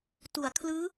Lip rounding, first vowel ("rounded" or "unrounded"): rounded